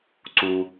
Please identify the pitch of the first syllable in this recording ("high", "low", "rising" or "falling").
low